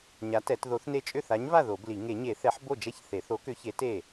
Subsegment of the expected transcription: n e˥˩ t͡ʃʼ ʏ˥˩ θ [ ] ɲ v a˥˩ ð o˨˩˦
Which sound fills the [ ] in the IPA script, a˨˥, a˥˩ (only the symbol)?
a˨˥